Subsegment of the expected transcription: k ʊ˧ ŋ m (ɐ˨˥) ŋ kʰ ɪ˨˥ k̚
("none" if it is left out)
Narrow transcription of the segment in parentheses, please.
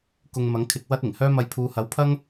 ɐ˨˥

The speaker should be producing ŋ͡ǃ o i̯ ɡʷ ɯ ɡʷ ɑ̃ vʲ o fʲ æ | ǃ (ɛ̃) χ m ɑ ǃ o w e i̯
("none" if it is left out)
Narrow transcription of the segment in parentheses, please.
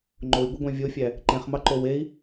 ẽ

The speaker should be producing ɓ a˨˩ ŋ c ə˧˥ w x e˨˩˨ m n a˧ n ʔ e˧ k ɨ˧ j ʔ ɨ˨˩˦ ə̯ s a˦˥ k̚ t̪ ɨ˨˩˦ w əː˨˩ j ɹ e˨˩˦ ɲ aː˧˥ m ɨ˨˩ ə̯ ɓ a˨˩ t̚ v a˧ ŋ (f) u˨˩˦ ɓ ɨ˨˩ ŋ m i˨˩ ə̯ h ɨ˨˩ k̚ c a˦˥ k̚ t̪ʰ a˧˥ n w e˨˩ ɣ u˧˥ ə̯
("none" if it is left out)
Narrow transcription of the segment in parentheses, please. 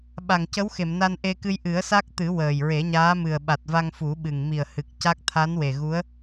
f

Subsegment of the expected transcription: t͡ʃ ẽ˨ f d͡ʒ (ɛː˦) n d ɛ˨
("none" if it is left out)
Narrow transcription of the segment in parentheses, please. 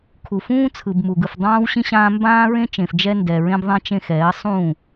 ɛ˦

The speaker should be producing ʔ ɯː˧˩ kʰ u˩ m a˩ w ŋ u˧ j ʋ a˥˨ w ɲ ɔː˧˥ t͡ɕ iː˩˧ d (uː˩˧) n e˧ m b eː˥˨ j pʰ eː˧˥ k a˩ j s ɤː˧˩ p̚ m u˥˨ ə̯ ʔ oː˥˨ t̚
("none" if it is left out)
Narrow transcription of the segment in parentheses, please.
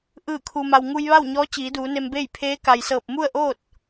uː˩˧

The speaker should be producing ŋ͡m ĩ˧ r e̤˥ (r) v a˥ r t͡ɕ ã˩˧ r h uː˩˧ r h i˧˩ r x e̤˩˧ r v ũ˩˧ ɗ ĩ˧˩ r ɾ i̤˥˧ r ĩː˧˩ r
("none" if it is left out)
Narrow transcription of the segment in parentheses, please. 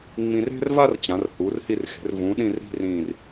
r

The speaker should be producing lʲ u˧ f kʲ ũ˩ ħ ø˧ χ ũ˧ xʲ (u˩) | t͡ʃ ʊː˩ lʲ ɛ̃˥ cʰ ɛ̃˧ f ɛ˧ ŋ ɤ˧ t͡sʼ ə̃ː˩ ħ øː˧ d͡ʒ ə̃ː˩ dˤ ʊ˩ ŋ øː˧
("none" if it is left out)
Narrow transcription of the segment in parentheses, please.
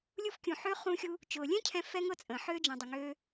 u˧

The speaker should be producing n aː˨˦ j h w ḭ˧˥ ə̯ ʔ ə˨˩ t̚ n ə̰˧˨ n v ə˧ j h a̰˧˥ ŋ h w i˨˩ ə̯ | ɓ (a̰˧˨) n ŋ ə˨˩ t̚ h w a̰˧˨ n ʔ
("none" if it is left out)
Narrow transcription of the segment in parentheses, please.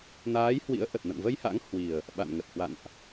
a̰˧˨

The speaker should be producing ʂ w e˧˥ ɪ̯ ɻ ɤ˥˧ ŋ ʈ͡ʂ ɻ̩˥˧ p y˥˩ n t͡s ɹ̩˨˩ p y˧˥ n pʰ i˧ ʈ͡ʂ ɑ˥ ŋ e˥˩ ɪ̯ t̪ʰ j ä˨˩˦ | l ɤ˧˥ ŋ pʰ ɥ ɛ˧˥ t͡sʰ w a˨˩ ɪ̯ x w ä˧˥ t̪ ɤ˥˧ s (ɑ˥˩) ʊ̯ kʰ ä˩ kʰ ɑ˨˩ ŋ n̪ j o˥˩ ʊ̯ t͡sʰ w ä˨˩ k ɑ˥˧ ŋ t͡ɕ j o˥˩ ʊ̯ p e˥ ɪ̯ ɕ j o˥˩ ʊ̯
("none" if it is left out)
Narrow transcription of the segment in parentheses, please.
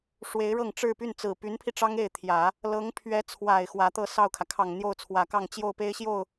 ɑ˥˩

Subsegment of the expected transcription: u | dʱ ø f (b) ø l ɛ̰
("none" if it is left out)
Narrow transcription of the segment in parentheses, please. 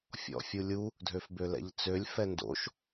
b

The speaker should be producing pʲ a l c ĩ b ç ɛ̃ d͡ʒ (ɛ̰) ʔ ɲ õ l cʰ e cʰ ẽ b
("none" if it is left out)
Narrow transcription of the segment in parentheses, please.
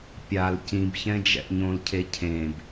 ɛ̰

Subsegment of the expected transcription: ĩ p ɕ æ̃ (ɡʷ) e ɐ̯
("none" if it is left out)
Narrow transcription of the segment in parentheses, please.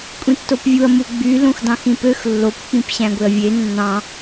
ɡʷ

